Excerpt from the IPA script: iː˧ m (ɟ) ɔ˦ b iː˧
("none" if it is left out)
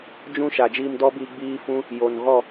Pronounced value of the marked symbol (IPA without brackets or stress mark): d